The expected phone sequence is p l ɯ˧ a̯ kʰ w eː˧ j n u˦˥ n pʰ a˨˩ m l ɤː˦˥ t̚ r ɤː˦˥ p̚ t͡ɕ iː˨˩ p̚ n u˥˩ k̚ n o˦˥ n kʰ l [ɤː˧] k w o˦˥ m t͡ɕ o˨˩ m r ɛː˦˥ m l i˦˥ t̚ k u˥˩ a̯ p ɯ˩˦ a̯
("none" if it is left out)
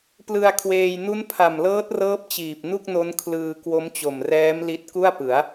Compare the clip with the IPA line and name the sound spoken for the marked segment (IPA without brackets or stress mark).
ɯː˧